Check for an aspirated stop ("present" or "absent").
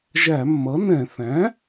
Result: absent